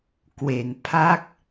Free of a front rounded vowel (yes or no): yes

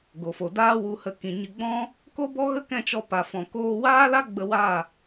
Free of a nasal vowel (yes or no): no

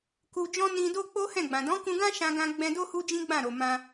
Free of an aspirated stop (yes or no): yes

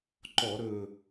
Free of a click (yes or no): no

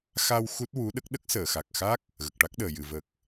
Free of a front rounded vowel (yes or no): yes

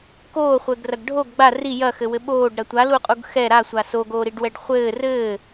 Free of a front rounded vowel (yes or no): yes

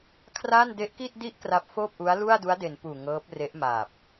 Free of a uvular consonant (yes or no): yes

